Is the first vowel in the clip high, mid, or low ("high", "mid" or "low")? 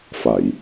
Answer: low